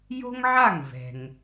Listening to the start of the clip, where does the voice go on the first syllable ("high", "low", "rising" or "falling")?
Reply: high